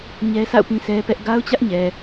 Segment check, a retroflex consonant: absent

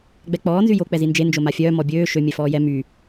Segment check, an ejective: absent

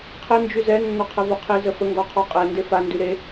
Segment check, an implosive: absent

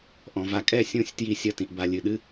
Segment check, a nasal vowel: present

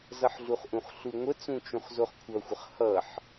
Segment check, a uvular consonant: present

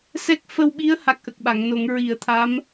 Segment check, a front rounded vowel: absent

